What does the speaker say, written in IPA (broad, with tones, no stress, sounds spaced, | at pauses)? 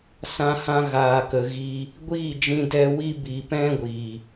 s ã˧ h ã˧ ɣ aː˨ k ə˨ ɣ iː˧ | ɡʷ iː˦˨ d͡ʒ ĩ˧ d ɛ˧ w i˦ b i˨ p ɛ̃˦ ɡʷ iː˨